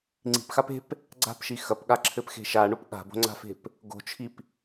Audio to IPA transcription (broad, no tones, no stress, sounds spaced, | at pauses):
ŋ͡ǀ i̤ p x a p e̤ p | ɡ͡ǀ a̤ p ʃ i x ɐ p ɠ a ǁʰ ɘ p x e̤ ʃ a ɳ o p ɠ a̤ b o̤ ŋ͡ǀ a̤ f e̤ p | ɡ o̤ t͡ʃʰ i p